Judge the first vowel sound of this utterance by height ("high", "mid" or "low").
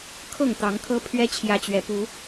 mid